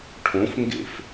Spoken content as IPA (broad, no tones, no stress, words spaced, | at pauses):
ʈʰõfŋɡḛf